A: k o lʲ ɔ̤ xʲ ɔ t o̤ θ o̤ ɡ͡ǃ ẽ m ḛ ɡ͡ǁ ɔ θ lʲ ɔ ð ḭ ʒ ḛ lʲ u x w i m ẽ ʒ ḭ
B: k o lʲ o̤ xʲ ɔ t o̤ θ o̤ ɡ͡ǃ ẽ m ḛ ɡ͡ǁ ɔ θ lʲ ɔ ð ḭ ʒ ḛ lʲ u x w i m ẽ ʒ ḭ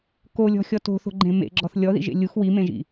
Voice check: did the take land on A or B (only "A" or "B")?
A